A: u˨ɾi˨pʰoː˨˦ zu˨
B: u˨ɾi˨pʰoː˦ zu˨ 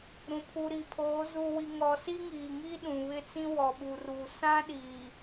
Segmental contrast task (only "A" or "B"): A